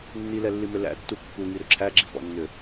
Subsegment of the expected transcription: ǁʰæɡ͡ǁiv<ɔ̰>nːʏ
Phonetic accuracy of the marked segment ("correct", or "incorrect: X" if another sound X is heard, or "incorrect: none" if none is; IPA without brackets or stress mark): correct